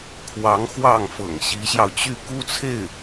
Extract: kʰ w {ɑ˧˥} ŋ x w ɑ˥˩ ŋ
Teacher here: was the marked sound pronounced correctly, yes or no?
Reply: yes